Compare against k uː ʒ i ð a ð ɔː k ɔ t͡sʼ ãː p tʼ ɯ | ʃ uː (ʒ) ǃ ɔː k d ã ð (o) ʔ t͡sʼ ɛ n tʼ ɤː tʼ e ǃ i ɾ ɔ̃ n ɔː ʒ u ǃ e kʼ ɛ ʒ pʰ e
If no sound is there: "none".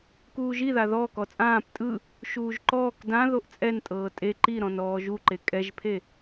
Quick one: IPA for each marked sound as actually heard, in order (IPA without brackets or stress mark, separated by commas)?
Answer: ʒ, o